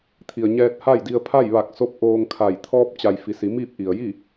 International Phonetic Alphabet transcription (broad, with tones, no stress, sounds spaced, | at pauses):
t̪ʰ i˩ ə̯ ɲ ɛː˧ t̚ h a˥˨ j d i˧ ə̯ pʰ a˥˨ j ʋ a˧˩ k̚ s o˧ p̚ ʔ oː˧ ŋ kʰ a˧˩ j t̪ʰ ɔː˧ p̚ t͡ɕ a˩ j f i˩˧ s i˩˧ m iː˥˨ p̚ ʔ i˩ ə̯ j i˥˨